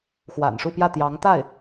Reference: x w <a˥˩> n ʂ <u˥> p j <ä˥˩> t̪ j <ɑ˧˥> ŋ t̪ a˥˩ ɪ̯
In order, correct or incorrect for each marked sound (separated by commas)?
incorrect, incorrect, correct, correct